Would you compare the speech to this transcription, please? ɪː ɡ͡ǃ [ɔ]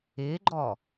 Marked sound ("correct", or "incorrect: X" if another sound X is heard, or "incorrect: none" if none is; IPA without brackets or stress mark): correct